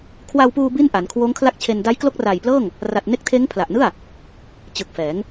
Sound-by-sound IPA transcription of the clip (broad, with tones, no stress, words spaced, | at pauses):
kʰwa˧wpuː˧ bi˥˩n ʔa˩˦nkʰwoː˦˥ŋkʰla˥˩k̚t͡ɕʰe˧n da˦˥jklo˦˥k̚raː˨˩jplɤː˥˩ŋ | ra˨˩t̚ ne˦˥k̚tʰeː˦˥ŋpʰla˨˩ʔnɯ˥˩a̯ | t͡ɕɯ˨˩k̚fɛː˩˦ŋ